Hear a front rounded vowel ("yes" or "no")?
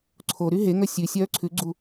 yes